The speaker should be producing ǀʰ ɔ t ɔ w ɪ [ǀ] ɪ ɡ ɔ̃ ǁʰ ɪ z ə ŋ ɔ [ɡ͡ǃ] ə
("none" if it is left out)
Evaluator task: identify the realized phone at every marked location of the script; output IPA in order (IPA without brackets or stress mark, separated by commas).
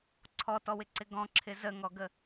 ǀ, ɡ